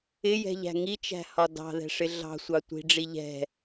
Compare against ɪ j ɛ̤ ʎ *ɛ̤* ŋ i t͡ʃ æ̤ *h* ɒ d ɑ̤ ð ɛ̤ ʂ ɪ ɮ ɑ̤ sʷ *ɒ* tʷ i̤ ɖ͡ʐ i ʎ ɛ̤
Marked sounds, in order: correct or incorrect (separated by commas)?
incorrect, correct, incorrect